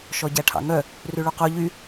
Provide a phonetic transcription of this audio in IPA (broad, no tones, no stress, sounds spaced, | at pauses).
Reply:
ʃ ɔ ɟ æ ʈʰ ɑ̰ ŋ œ | r ʉ ɭ u q o ʎ y